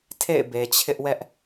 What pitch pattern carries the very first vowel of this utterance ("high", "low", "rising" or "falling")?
falling